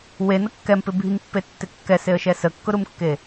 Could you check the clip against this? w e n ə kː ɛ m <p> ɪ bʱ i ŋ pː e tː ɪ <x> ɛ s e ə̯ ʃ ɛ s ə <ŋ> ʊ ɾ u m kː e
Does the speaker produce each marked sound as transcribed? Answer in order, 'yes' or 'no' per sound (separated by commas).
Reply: yes, no, no